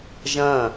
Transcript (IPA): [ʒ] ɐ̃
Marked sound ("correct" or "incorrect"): correct